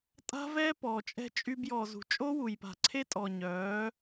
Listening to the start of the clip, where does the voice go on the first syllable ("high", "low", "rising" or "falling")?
high